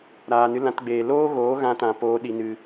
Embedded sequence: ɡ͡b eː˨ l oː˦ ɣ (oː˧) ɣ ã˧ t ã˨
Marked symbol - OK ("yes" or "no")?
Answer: no